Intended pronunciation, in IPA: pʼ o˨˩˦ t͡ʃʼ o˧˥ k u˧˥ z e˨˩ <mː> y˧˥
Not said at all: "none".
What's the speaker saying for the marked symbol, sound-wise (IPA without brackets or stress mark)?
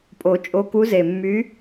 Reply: mː